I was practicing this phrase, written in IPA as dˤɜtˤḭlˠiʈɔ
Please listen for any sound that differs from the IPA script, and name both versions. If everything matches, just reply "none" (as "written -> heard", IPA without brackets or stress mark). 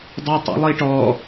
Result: none